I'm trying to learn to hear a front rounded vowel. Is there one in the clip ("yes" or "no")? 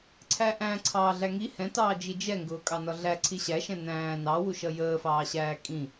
no